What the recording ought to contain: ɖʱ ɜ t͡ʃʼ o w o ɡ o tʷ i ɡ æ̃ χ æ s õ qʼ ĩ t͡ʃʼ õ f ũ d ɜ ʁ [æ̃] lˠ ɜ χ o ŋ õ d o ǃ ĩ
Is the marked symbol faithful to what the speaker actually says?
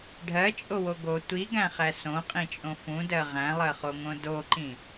yes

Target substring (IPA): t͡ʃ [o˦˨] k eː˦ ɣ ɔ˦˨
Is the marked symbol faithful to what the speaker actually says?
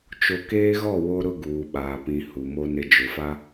no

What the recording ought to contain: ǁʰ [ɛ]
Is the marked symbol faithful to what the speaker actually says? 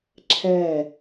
yes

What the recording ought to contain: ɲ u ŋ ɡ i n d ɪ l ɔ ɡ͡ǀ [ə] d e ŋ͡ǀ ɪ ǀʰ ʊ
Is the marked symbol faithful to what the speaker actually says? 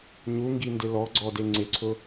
no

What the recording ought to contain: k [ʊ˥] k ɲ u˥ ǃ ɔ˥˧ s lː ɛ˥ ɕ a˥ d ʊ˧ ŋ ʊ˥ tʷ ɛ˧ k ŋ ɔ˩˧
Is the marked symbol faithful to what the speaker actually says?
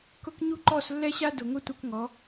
yes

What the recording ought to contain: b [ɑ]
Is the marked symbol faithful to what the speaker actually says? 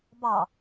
yes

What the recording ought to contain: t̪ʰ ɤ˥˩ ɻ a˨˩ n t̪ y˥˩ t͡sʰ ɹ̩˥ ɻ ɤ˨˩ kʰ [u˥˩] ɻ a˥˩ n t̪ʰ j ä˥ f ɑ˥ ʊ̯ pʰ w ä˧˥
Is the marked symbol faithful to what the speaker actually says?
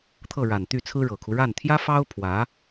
no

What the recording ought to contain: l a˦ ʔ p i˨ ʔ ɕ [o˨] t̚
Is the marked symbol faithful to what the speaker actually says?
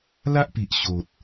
yes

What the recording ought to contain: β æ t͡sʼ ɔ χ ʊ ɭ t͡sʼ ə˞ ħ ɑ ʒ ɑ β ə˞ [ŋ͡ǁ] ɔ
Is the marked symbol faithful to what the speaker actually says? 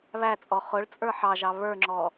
yes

